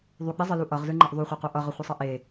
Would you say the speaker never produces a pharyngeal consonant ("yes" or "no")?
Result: yes